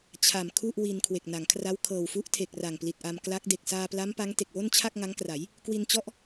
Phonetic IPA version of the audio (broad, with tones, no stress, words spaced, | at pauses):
t͡ɕʰa˨˩m kʰu˥˩ʔwi˧n kʰwe˨˩k̚na˩˦ŋkʰra˦˥w kʰɤː˨˩wfu˦˥ʔtʰe˨˩k̚ ra˨˩ŋpli˨˩t̚ʔa˧m kla˦˥k̚ de˨˩k̚saː˧pla˦˥mpa˦˥ŋ te˨˩k̚wo˥˩nt͡ɕʰa˥˩k̚ ŋa˦˥ŋkra˩˦j | kwi˧nt͡ɕɔ˦˥ʔ